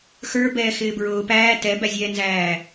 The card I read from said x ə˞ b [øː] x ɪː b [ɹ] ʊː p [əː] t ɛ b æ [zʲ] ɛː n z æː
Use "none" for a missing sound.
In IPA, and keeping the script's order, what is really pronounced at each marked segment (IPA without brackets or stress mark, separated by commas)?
ɛː, ɹ, æː, zʲ